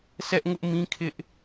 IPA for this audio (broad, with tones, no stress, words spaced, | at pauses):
sɛ˦ʔŋʊ˦ʔ mĩ˦kʰɪ˦ʔ